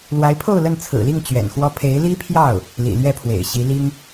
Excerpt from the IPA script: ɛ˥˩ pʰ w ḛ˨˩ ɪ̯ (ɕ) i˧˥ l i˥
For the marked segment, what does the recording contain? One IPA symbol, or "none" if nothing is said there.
ɕ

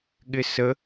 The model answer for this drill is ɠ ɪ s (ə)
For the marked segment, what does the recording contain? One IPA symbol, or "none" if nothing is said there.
ə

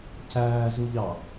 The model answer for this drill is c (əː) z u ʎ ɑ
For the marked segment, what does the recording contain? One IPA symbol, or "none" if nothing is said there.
æː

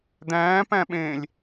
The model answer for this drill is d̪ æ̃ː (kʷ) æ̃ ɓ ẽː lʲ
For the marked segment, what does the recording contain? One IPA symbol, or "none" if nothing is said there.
p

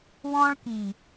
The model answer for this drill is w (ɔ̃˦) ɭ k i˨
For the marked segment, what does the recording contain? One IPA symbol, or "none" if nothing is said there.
ɔ̃˦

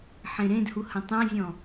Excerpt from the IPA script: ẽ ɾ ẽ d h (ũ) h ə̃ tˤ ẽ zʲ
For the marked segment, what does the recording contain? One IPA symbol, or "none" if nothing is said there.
u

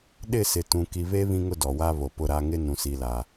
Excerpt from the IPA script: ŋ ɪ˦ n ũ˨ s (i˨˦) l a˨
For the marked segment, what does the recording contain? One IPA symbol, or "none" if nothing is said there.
i˨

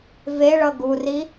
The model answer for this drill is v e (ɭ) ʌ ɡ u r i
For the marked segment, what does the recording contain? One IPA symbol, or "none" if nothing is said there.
ɭ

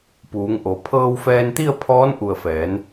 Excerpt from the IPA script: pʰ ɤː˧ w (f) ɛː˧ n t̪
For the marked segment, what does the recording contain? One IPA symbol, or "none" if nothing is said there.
f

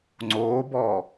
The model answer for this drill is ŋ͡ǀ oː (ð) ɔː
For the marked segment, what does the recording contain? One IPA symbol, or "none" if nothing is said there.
b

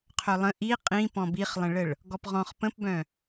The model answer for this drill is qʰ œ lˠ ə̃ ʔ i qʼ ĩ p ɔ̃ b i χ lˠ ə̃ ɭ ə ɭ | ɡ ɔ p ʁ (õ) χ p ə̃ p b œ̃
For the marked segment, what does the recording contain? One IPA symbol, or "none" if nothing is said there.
ɔ̃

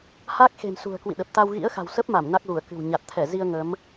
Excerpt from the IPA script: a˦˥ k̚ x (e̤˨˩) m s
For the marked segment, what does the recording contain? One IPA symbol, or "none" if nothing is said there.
e̤˨˩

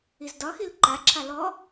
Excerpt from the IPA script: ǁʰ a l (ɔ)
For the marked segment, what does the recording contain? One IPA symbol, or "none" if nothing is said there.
ɔ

